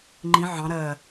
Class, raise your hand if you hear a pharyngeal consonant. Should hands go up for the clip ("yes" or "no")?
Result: yes